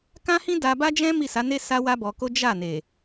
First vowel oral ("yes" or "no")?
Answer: no